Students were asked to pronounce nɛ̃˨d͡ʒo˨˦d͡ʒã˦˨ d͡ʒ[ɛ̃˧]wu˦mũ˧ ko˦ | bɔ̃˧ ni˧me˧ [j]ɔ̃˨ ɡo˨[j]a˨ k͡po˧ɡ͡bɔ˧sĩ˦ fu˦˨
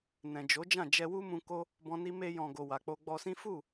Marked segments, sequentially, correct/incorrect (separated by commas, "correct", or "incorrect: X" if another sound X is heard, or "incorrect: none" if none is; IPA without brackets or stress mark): incorrect: ɛ˧, correct, incorrect: w